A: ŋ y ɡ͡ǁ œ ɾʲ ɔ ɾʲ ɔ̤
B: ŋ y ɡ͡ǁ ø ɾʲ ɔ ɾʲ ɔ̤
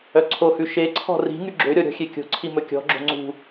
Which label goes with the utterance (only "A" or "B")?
B